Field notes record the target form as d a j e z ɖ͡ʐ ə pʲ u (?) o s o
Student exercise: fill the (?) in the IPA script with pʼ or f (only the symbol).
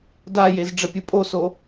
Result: pʼ